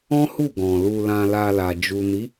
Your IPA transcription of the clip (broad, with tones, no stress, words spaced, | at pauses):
ɔ̃˦hu˦˨ ɡɔ̃˨lu˧ lã˧la˧la˨ d͡ʒu˨ni˨˦